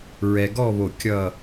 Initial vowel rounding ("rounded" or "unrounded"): unrounded